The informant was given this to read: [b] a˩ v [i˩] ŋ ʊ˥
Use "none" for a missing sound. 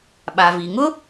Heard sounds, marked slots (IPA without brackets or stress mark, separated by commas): ɓ, i˩